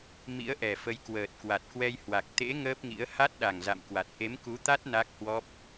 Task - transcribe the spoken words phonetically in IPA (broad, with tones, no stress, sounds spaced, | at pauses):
m ḭ˧˥ ə̯ ʔ ɛ˨˩ f ə˨˦ j k w əː˨˩ t̚ k w a˨˩ t̚ k w ɛ˧ j h w a˨˩ k̚ t̪ ḛ˧˥ ŋ əː˦˥ p̚ ŋ ḭ˧˥ ə̯ h a˦˥ t̚ ɗ a˨˩ ŋ z a̰˧˨ m k w a˨˩ t̚ ʔ e˨˦ m k u˨˦ t̪ a˦˥ t̚ n a˦˥ k̚ h w ɔ˦˥ p̚